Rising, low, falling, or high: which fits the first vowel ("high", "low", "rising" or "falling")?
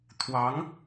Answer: rising